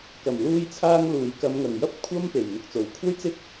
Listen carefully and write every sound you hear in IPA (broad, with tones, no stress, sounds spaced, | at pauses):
k ɐ˨˩ m l uː˧ j t͡sʰ aː˧ ŋ l uː˨˩ j k ɐ˨˧ m ŋ ɐ˨˩ ŋ j ɐ˥ p̚ kʷʰ ɐ˥ m p e˨˩ j n̪ ʊ˨ k̚ t͡s o˨˩ w kʷʰ ɐ˥ j t͡s ɪ˥ k̚